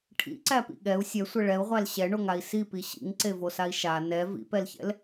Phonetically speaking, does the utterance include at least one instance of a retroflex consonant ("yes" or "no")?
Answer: yes